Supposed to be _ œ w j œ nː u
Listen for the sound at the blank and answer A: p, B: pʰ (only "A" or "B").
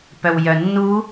A